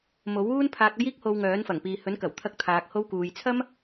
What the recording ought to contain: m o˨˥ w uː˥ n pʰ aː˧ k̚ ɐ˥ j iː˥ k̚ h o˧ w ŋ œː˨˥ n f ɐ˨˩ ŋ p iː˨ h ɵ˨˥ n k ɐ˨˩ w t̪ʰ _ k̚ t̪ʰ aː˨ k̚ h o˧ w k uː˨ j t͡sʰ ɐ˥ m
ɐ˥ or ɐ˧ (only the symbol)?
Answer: ɐ˧